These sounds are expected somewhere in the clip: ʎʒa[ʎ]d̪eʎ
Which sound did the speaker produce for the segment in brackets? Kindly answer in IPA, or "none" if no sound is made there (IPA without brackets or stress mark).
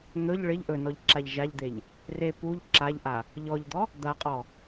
ʎ